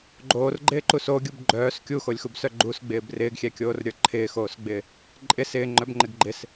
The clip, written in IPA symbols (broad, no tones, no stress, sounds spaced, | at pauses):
ɡ͡ǃ oː r ɡ͡ǃ ɪː ǃ u s o ɡʲ u b ɡ͡ǃ œː s kʲ u x o lʲ x u b s œ ɡ͡ǃ u s ɡ͡b ɪː b r ɪː ɡ xʲ ɛ kʲ oː r ɾʲ ə˞ ǃʰ ɪː x oː s ɡ͡b ɪː | ǃʼ ɪ s ɪː ŋ͡ǃ œ b ŋ͡ǃ ɪ ɡ ɡ͡ǃ ɪ s